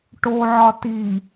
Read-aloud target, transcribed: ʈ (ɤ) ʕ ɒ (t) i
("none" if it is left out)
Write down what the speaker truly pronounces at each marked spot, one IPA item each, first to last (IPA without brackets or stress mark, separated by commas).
o, t